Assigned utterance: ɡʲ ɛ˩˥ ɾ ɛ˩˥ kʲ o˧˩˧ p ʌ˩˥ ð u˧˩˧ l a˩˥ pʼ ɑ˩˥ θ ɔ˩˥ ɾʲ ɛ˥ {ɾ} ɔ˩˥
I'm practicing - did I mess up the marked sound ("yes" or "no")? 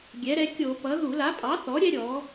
yes